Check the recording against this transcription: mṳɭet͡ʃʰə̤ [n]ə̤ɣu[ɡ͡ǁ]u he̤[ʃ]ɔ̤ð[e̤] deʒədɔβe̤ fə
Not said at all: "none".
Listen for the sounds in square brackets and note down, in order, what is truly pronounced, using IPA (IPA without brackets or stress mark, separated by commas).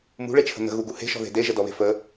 n, ɡ, ʃ, e̤